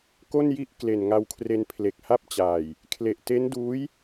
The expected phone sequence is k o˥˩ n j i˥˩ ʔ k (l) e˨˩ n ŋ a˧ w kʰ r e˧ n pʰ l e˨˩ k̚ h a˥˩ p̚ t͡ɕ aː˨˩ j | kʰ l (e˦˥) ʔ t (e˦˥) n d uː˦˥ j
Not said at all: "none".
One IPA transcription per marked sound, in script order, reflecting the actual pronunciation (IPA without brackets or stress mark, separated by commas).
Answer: l, e˨˩, e˦˥